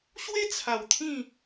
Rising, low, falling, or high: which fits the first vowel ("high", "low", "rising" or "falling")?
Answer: high